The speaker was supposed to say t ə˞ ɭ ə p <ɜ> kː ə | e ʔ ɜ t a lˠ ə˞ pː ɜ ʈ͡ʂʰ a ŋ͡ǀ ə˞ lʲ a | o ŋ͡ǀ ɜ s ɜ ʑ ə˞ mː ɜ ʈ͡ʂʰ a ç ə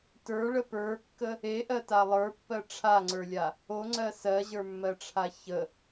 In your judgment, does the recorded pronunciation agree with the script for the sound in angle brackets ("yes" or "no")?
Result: no